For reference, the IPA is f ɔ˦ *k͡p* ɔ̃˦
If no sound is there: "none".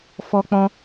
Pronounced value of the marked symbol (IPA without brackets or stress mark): k͡p